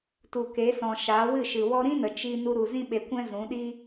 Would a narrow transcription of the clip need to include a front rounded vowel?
no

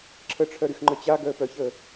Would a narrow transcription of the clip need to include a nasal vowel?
no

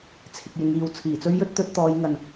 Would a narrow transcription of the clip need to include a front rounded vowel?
no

